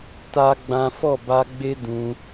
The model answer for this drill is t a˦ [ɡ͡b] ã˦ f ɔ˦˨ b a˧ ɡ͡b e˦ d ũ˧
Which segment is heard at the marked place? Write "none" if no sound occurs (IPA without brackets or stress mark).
ɡ͡b